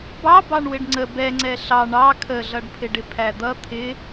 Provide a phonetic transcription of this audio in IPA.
bɑ bɑɳwɪɖŋ͡ǀə bɛŋ͡ǀɛ ɬɑ ɳɑ kʰəɮʌɖpʰɪɖɪ pʰæd̪ʌ t̪ʰɪ

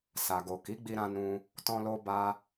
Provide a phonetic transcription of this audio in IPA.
sa˨ɡo˨ki˨˦ɡ͡bi˧ ɾã˧nũ˧ | tɔ̃˧lo˧ ba˧

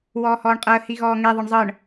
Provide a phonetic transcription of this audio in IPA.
wɔːhɔːɳqʼɤə̯ hiɣɔːŋe ðˤɤɳzˤɤɳ

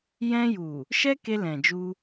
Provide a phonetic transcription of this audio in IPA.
jɛ̃˧ju˨ | ʃɛ˦ke˧lɛ̃˨ d͡ʒu˧

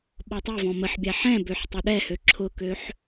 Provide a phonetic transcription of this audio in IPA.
ɓɔtˤɛvɔ̃ məħbʲa ħɛ̃ bøħtˤʊɗɛhø ǁʰʊkøħ

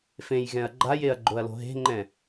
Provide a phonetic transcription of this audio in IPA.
fẽjɣɛ̃ɐ̯ ɡ͡ǃajeɐ̯ ɡ͡ǃoɐ̯lo̤ɦe̤ŋ͡ǃɛ̃

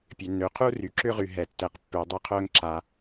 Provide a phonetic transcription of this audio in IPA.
pʲø˩nːø˩qʰu˥ ry˩ǁʏ˥ʁy˩ ɦɛ˩tːɛ˩qpːø˩ dˤʏ˥ qʰœ˥ŋǁa˩

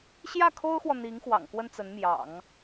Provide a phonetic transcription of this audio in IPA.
ɕjä˥˩ kʰo˥ʊ̯xwɔ˨ n̪i˧˥ŋ xwɑ̰˨˩ŋkwə˥nt͡sə˧˥nmjɑ̰˨˩˦ŋ

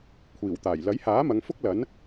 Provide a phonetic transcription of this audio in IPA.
kʷʰiː˨˩wt̪aː˨˩j lɐ˨˥jhaː˨˥ mɐ˨˧ŋfʊ˥k̚ lɐ˨˥n

